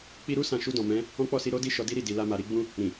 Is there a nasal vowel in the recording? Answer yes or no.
yes